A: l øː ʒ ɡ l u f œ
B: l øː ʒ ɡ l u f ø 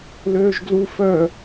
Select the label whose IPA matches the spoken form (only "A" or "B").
A